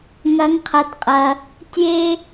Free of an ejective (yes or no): no